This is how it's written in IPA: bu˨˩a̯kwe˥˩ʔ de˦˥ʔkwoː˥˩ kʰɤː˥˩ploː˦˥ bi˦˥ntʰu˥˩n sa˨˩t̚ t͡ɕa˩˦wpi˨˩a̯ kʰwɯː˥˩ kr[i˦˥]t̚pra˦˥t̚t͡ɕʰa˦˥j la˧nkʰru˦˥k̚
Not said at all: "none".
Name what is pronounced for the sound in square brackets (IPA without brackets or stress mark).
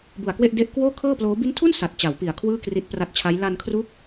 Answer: i˦˥